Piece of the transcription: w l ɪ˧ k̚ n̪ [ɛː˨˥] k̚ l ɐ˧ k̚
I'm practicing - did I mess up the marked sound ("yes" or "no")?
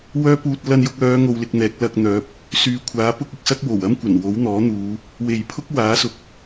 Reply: no